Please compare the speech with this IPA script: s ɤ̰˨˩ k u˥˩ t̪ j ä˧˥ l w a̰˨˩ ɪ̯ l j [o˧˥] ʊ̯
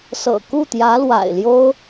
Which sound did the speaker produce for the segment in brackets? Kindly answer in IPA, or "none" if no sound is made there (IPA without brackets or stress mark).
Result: o˥